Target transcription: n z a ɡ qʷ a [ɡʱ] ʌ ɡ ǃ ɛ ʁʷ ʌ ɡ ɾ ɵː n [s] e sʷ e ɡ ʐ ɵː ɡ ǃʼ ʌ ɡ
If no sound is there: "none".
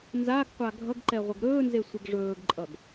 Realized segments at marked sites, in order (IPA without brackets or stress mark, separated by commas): ɡʱ, z